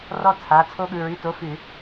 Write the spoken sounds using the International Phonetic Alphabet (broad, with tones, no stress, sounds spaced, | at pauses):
r ɔ˦ t͡sʰ a˩˧˩ t͡sʰ o˦ ɠ ɯ˩˧˩ ɹ ʉ˩˧˩ t o˩˧˩ f ʉ˧˩˧